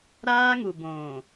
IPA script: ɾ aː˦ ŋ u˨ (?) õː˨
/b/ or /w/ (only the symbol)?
b